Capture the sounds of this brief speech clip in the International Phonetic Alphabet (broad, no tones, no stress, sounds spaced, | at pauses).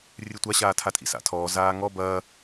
rʲ ɨ tʷ a ɕ aː tʰ a tʼ ḭ s a̰ tʰ ɔ z aː ŋ ɔ b ɐː